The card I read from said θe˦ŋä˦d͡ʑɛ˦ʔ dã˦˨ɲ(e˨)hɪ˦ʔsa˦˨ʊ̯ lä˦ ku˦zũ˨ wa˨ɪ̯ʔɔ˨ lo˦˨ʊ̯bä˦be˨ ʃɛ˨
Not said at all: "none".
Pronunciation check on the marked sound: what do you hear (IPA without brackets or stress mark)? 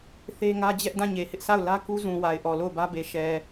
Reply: e˨